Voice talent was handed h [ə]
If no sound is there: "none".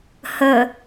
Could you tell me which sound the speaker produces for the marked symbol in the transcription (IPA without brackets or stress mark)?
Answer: ə